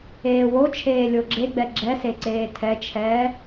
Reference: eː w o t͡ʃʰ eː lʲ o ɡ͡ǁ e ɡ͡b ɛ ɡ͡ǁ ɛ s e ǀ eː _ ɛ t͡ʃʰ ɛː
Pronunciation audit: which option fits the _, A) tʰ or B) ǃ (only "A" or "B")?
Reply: A